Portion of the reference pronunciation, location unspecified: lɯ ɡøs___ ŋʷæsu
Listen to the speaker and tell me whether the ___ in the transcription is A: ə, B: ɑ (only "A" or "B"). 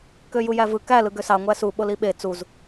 B